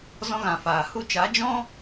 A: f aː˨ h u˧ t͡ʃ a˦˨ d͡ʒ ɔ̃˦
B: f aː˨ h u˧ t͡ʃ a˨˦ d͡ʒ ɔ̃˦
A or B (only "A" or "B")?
B